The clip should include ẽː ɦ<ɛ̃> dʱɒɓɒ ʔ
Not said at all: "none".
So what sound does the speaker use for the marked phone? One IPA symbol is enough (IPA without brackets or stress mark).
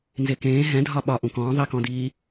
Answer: ɛ̃